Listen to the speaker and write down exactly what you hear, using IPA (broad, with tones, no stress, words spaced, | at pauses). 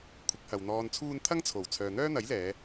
kʷʰɪ˨˥k̚hɐ˨wn̪ɔː˧nt͡sʰuː˥n t̪ʰɐ˥ŋt͡sʰo˨˩w t͡sʰœː˨n̪œː˥n̪ɐ˨˥jlɛː˨˧